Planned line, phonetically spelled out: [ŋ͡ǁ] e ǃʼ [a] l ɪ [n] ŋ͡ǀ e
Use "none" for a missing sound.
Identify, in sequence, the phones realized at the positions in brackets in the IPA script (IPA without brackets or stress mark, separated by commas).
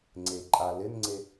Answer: ŋ͡ǀ, a, n